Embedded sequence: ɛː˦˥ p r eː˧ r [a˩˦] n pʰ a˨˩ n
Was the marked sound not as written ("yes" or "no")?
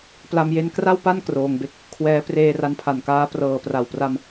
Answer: yes